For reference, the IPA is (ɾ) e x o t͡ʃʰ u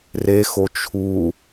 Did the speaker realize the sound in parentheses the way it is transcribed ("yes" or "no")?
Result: no